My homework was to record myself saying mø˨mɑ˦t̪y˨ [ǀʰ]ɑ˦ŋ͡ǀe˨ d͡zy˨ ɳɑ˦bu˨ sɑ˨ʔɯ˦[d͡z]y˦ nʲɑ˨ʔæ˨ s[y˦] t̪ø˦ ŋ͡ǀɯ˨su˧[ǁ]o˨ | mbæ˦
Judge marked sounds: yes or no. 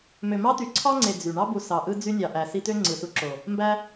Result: yes, yes, no, yes

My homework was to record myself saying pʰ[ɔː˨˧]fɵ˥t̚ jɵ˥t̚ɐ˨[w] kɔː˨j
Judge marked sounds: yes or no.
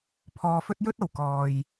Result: yes, yes

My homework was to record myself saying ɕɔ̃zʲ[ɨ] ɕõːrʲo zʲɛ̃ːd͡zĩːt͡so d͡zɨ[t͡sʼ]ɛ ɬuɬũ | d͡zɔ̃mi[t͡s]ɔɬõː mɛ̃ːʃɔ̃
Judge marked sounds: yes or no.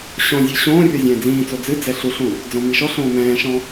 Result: yes, no, no

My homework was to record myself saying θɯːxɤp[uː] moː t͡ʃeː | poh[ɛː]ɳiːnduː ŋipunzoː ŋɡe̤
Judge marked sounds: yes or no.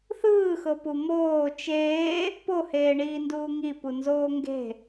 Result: no, no

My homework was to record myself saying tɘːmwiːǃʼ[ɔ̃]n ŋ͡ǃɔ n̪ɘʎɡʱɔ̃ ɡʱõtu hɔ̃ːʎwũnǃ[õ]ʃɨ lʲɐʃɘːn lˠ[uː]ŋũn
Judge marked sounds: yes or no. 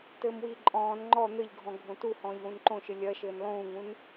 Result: no, yes, no

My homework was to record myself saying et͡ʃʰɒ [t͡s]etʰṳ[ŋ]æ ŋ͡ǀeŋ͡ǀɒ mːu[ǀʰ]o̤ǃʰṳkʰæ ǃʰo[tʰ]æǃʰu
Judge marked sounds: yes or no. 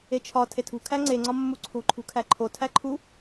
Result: no, no, yes, yes

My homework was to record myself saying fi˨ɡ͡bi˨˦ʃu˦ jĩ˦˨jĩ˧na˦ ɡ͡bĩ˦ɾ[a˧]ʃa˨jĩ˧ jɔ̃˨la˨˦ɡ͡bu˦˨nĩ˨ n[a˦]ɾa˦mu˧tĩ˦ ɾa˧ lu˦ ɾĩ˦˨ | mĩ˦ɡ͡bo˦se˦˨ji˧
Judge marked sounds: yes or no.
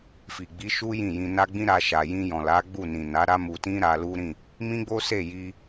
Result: yes, no

